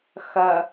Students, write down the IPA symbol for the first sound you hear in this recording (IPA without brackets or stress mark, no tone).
x